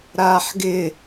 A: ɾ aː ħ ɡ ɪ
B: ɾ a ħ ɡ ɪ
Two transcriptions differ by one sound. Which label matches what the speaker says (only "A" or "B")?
A